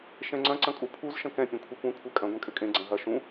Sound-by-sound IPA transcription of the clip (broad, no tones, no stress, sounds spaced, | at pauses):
ʃ ɛ̃ ŋ͡ǀ ɐ̃ ǀ ɐ̃ kʼ u pʰ u z ʃ ɐ̃ k ɛ̃ pʲ ɛ̃ kʷʰ e kʷ ɛ̃ kʷʰ ɛ kʼ ɐ̃ ɡʷ ẽ kʼ ʏ kʼ ẽ ɡ͡ǀ ɐ̃ ɦ ɐ ʃ ũ